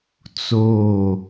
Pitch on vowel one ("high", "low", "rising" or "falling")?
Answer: falling